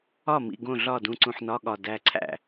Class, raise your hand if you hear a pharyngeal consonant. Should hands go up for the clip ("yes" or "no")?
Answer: yes